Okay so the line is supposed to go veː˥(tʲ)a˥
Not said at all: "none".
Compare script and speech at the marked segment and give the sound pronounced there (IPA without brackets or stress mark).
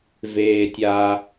tʲ